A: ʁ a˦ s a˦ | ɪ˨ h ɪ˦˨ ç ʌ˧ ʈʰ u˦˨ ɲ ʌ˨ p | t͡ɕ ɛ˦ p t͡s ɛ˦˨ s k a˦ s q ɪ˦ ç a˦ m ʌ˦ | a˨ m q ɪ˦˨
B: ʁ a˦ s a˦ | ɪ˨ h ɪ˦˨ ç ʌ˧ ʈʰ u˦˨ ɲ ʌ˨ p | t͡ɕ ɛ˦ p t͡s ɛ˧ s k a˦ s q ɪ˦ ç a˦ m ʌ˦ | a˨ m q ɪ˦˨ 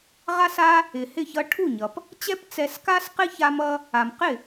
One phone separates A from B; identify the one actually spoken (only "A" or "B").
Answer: B